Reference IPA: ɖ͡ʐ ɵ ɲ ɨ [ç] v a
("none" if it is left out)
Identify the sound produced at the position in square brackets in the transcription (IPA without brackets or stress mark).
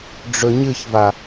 ç